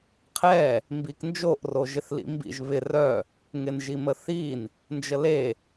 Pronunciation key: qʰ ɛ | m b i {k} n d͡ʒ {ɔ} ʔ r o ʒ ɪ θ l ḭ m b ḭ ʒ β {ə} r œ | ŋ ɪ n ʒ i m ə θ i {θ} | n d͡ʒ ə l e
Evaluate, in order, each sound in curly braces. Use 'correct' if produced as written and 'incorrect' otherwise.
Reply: correct, incorrect, incorrect, incorrect

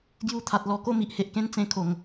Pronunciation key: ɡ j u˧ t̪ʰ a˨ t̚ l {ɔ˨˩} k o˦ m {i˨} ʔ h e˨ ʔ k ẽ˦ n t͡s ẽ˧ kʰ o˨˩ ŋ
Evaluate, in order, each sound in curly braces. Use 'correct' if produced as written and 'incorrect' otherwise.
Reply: correct, correct

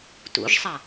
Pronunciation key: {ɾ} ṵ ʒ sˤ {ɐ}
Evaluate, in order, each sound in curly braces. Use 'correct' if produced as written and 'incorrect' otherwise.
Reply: incorrect, correct

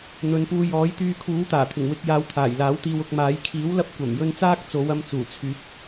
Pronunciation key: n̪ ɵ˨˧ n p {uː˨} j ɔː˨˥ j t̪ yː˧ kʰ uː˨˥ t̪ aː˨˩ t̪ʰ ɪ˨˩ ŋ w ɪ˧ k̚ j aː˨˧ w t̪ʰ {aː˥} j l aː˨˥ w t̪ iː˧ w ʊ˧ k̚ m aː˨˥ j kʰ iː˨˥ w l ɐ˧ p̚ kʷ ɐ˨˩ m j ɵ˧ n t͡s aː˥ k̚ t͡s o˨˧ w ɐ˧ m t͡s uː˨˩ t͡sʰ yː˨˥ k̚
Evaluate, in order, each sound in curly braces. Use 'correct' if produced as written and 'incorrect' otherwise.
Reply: incorrect, incorrect

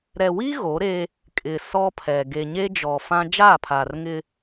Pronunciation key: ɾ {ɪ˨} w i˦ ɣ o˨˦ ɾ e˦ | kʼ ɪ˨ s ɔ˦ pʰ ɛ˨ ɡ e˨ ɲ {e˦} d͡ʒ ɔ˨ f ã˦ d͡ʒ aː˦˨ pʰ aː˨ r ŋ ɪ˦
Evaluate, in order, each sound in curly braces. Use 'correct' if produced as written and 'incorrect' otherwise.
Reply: incorrect, correct

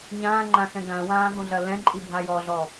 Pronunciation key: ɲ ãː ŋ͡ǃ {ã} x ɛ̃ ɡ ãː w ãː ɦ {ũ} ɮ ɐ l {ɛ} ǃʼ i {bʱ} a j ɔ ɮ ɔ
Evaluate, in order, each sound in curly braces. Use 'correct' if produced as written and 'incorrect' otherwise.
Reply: correct, correct, incorrect, correct

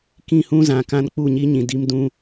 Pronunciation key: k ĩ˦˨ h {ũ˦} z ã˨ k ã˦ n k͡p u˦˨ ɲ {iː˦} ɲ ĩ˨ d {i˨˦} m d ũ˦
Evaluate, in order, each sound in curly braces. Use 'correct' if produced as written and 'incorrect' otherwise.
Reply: correct, incorrect, incorrect

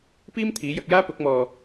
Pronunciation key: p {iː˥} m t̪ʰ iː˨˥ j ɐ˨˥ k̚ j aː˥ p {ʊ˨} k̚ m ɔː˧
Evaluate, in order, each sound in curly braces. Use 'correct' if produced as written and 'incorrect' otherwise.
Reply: correct, incorrect

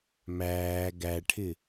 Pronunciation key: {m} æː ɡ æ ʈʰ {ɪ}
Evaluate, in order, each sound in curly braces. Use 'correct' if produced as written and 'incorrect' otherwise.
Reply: correct, correct

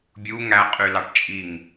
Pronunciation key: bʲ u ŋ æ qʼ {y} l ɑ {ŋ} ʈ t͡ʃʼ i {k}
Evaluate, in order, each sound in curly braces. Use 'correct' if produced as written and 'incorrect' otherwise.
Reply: correct, incorrect, incorrect

